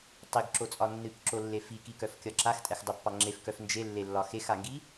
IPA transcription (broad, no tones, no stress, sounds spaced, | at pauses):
tˤ i ɡ ǁ o t͡sʼ ɒ nː ɨ k ǁ o lː e f i k i k œ f kʲ ɒ ǁ a x tʼ ɛ x dˤ o pː ɑ ŋ͡ǁ e f k œ f n d͡ʒ e lː e lː ɒ x e x a ŋ ɡ i